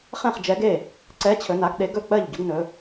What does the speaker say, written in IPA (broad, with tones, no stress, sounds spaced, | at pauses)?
χ ɛ̃˥˩ χ d͡ʒ ɛ˨˥ ɡ e˥˩ | ǀ ɛ˨˥ t͡ɕʰ ɵ˩˧ n a˩˧ ɡ ɗ e˨˥ ɡ ɵ˥˩ k͡p ɜ˥˩ ʎ ɟ ʊ˨˥ ɡ n ɵ˩˧